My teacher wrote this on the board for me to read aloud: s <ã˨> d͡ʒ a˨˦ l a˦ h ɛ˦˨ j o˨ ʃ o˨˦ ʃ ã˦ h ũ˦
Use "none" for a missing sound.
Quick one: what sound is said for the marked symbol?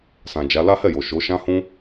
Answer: ã˨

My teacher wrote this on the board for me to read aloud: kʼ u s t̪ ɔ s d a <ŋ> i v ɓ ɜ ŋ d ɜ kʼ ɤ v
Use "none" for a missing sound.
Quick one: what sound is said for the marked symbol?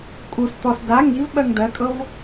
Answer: ŋ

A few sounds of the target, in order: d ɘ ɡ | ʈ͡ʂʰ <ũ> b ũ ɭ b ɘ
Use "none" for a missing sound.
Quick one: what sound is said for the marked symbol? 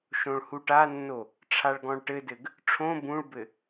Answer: õ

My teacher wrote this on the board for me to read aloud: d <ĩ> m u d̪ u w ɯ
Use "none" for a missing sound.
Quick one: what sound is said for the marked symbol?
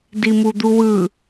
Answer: i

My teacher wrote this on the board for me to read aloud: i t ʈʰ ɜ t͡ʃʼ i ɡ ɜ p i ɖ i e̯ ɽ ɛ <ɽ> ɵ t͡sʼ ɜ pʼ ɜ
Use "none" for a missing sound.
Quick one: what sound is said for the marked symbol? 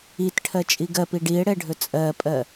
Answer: ɖʱ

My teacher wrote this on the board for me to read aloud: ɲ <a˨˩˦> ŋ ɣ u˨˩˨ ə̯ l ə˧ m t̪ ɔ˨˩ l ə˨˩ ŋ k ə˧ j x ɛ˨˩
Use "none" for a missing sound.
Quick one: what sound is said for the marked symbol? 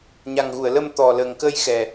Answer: a˨˩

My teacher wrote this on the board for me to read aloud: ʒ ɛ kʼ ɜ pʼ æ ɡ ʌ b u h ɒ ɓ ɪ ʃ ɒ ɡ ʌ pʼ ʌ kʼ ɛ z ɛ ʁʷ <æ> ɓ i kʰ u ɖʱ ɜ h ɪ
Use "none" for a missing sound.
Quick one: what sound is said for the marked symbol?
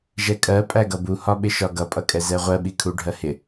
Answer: ɜ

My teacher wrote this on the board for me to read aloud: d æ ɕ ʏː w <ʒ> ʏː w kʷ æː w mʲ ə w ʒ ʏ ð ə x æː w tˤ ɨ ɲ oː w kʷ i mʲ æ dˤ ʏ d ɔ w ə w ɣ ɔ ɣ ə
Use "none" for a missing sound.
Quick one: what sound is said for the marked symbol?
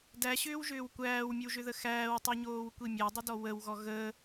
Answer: ʒ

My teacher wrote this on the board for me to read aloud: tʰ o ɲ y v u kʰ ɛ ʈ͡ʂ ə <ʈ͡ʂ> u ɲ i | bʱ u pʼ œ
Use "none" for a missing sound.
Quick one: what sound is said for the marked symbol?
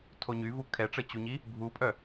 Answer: t͡ɕ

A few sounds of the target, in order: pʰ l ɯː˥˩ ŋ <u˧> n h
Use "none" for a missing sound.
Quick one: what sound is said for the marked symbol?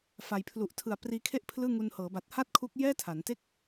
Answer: u˧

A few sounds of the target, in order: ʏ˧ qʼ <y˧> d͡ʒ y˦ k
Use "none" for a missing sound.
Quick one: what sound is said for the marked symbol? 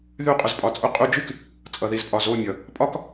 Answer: y˧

